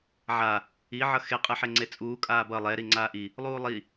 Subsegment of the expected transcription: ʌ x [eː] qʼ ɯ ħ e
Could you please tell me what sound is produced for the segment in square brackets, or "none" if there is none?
e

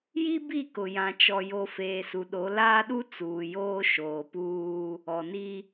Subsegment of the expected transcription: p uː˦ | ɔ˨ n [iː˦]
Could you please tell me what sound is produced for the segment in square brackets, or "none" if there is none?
i˦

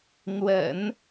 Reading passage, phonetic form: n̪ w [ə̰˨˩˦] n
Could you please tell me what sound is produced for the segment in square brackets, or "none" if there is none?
ə̰˨˩˦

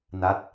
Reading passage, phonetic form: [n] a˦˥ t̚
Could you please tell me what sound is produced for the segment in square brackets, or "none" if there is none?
n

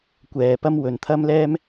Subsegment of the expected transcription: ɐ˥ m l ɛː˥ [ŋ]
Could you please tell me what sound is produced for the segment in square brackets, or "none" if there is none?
m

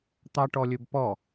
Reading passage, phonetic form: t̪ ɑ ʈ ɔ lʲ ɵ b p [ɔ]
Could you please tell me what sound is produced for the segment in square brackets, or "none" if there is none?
ɔ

